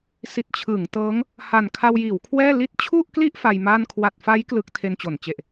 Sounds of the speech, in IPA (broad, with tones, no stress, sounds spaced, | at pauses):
s i˨˩ t̚ t͡ɕʰ ɯː˩˦ ŋ t ɤː˦˥ ŋ | h a˨˩ n kʰ a˧ w j iː˩˦ w kʰ w ɛː˥˩ l i˦˥ t̚ t͡ɕʰ u˥˩ ʔ k l i˥˩ ʔ f a˧ j m a˥˩ n kʰ w a˨˩ t̚ f a˦˥ j k l ɯ˦˥ k̚ tʰ e˧ n t͡ɕ o˩˦ n t͡ɕ e˨˩ ʔ